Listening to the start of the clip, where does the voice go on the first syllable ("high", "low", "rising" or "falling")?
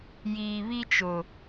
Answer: low